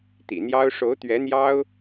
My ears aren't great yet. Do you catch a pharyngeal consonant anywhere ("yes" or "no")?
no